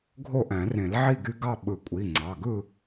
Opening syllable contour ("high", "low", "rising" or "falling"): falling